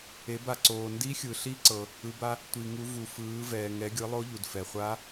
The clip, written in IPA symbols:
e˩˧ba˩ǀoː˩ ndi˧˥xʲɯ˩ ɬi˧˥ǀɤ˩ | ɯ˩˧ba˧ | tʷi˩ŋu˩˧ vu˩fɯː˩˧ vɛː˩ŋɛ˩˧ɡʲɯ˩˧ lˠo˧˥ʎu˩dfɛ˩χʷa˧˥

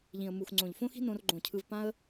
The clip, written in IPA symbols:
ʎĩ˨ə̯mu˨xŋ͡ǀõ˨ʎ fõ˦xi̤˦ nõ˦rɡ͡ǃõ˦˨ cʰɯ˧vpã˦ə̯

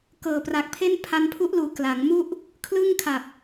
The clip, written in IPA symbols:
kɤː˨˩pra˨˩k̚pʰe˥˩n pʰa˧npʰu˦˥ʔluː˨˩ kla˩˦ŋmu˥˩ʔ | kʰlɯ˥˩ŋkʰa˨˩p̚

